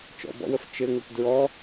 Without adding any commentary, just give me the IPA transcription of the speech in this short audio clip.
t͡ʃ ɔ̰ b ɔ̰ w ə f t͡ʃ ɘ ŋ ə p d ɹ ɔ

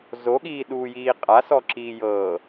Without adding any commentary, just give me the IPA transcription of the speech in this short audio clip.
z o ɠ iː ɗ uː j iː qʼ a s ɔ ǁ iː j ɤː

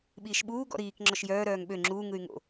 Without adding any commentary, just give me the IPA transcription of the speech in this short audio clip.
ɓ iː ʃ ɓ uː ɡ ɔ̰ ɾ iː k ŋ͡ǁ ɔ ʃ j œː ɾ œː ŋ ɓ ø ŋ͡ǁ uː ŋ ɯ y̯ ŋ o̰

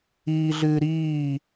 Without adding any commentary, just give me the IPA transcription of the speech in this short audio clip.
iː ɮ ɨː ɾ iː

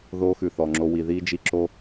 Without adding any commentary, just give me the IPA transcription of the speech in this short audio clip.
ð oː˦ x ʉ˨ θ ɔ˨ ŋ͡ǁ o˧ w i˨ ð iː˧ d͡ʒ i˧ ǁ o˦

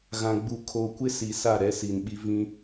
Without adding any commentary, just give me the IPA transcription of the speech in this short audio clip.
ɣ ã˨ ɡ͡b u˨ kʰ o˨ kʷ ɪ˦ s i˨ s a˦˨ ɾ ɛ˦ s i˨ n ɓ i˦ v ĩ˦

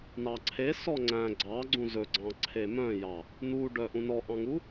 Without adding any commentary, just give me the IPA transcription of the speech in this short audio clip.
n ɑ ǀʰ e s ɔ ŋ͡ǀ æ̃ ɡ͡ǀ ɑ ɡ͡ǀ ũ z ɵ ɡ͡ǀ ɑ̃ ǀʰ e m œ̃ j ɑ | n̪ u ɖ œ ʔ ũ n ɔ ʔ ɑ̃ ŋ u

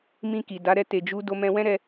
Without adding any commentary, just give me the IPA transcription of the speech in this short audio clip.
m ĩ˧ k i˨ d a˨˦ ɾ ɛ˧ t e˨ d͡ʒ u˨˦ d o˧ m ɛ̃˧ w ɛ̃˦ ɾ ɛ˧

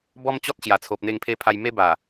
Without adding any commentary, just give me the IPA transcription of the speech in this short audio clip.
b ɔ˦ m t͡ɕ ɔ˦ t̚ ɕ j a˨˩ t͡sʰ o˨ p̚ n̪ e˧ ŋ pʰ e˧ pʰ a˧ j m e˦ b a˨˩

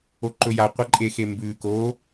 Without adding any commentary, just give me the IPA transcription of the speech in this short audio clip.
o ǃ ɵ j a qʷ a ǃʼ e x e m b ʉ k o

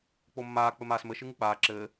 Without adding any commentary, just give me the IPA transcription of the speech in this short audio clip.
k͡p o mː aː k͡p ɘ m aː s m ɘ ʃ ɨ ŋ ɨ k͡p aː ǁ ɘː

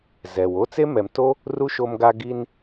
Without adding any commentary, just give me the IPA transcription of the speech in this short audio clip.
z ɛ˨ w o˦ t͡s e˦ m ɛ˨ m tː o˦ | r u˦ ʃ o˧ m ɡ a˧ ɡ i˧ n

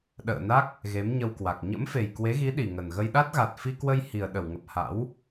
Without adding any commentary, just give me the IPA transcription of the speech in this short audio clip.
ɗ ə̰ː˧˨ n a˦˥ k̚ | ɣ e˨˦ m ɲ ə˧ w k w a˨˩ k̚ ɲ ə̰˧˥ m f e˨˩ j k w e˨˦ ɣ i˨˦ ɗ i˨˩ ŋ ə˨˩ n ɣ ə˧ j ɗ a˦˥ t̚ ɣ a˨˩ t̚ f i˧ k w ə˧ j h i˨˩ ə̯ ɗ ə˧˩ w ŋ ə˨˩ p̚ h a̰˧˥ w

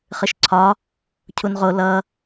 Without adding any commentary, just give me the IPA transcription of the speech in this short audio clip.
χ ɨ ʃ ǀʰ ɒ | cʰ u n ʁ o l ʌ

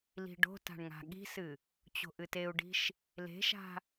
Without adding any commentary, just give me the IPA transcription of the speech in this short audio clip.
l i̤ ɖ o̤ t a̤ ɳ ŋ a̤ ɠ i̤ s ɨ | t͡ɕ o̤ ʔ ɨ t e u̯ ɖ i̤ ʃ | l e̤ ʃ a̤

